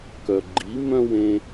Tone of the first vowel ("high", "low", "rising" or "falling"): low